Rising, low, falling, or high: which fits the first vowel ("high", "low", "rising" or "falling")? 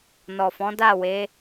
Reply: low